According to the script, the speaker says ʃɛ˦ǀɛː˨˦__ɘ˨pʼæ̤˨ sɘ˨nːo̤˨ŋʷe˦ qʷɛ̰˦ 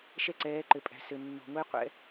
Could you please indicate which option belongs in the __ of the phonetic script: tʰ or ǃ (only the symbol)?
ǃ